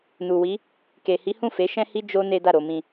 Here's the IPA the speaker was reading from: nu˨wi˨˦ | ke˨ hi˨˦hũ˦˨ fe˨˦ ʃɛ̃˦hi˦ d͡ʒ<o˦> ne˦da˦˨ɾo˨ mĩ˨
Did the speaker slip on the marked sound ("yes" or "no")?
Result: yes